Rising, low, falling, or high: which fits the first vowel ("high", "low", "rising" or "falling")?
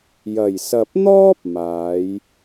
low